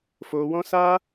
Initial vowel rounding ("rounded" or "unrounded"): rounded